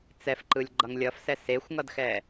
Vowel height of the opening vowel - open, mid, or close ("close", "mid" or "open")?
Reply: mid